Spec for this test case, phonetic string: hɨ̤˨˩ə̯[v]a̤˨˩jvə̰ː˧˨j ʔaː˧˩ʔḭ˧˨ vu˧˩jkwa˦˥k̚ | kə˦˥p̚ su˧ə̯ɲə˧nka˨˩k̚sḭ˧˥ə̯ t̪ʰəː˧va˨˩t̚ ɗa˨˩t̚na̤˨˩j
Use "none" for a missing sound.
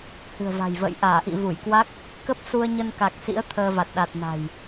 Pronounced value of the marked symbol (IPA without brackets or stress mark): v